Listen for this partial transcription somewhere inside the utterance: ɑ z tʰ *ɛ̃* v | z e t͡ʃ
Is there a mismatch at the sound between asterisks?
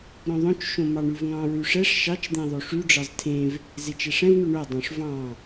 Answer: yes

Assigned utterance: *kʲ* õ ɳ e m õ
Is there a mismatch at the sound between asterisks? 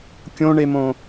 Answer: no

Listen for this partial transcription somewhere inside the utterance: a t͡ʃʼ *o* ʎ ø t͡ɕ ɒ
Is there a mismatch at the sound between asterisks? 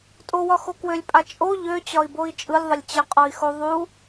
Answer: no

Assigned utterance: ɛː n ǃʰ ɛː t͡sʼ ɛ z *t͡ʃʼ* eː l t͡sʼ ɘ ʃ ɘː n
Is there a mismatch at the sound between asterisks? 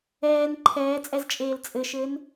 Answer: no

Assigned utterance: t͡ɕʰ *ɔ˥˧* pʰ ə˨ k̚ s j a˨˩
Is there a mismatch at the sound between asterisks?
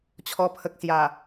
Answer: yes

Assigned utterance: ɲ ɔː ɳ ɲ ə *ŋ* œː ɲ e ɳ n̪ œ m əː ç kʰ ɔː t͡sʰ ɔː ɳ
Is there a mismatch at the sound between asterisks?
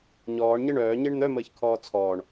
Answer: yes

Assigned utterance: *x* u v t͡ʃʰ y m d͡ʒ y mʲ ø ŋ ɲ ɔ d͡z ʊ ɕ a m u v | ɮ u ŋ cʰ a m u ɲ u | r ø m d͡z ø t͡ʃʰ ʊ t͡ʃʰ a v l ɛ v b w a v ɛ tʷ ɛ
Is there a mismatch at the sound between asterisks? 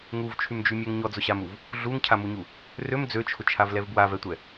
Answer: yes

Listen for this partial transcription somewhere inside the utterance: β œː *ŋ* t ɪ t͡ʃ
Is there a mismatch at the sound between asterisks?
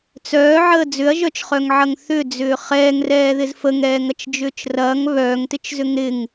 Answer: no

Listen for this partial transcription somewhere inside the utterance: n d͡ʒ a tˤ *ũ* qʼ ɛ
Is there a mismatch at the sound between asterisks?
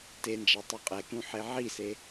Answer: yes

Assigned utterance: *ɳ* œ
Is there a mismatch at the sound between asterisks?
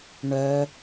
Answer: no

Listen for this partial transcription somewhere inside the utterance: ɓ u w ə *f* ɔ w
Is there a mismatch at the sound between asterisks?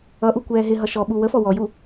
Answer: no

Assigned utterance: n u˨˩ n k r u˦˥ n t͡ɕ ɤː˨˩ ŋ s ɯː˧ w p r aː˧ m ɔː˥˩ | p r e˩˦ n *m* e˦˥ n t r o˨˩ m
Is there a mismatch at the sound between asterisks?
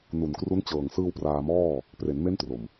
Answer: no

